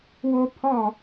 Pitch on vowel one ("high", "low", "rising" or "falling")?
high